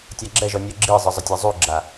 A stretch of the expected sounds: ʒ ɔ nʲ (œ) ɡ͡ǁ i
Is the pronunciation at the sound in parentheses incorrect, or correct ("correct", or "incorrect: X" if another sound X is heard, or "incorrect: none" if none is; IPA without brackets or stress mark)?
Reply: correct